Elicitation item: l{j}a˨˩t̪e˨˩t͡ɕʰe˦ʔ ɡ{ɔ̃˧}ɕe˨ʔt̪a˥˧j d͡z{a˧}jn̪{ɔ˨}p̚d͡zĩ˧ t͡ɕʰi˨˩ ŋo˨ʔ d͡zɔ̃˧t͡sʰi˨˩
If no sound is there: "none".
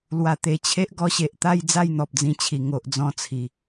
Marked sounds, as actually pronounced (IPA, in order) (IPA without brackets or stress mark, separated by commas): w, ɔ˧, a˥˧, ɔ˨